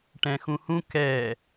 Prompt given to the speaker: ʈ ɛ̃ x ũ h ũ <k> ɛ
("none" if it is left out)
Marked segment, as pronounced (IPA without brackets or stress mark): k